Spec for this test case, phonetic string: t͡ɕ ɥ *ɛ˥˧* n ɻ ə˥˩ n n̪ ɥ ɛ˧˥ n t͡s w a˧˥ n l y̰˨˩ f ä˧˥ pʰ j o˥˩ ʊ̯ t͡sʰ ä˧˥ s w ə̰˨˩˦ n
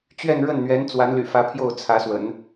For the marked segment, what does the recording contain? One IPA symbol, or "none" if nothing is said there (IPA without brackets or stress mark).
ɛ˥˧